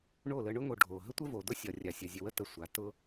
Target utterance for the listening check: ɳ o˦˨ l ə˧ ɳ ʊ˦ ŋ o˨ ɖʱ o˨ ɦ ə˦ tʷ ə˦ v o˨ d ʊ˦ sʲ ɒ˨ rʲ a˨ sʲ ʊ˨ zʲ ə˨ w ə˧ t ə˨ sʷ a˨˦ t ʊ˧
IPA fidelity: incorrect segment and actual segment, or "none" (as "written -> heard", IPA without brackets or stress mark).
none